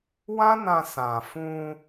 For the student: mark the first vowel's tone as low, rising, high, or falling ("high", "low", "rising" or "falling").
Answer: high